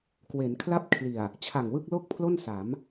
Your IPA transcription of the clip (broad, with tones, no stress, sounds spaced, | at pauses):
k w e˩˦ n kʰ l a˥˩ p̚ kʰ l i˨˩ a̯ | t͡ɕʰ a˨˩ ŋ w ɯ˥˩ k̚ l o˥˩ k̚ pʰ l o˥˩ n s a˩˦ m